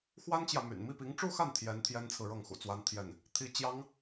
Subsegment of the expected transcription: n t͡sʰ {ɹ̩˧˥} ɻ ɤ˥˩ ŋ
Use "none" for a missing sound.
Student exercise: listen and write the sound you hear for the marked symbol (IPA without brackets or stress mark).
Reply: ɹ̩˨